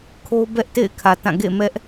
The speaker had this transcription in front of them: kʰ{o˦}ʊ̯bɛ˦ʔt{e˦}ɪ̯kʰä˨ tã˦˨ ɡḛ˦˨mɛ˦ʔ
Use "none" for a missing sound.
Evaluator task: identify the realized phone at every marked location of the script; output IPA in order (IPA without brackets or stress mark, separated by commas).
o˦, ḛ˦˨